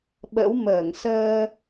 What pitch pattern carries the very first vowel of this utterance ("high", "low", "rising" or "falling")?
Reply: rising